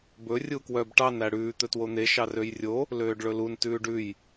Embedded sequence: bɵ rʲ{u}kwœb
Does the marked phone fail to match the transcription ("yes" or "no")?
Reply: no